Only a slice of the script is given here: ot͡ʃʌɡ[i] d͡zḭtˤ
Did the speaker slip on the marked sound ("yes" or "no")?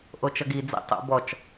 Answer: no